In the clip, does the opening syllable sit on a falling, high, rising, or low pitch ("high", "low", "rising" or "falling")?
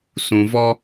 low